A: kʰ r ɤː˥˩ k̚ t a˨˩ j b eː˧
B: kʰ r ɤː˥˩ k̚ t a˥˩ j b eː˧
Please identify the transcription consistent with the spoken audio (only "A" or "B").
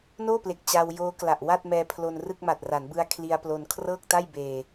B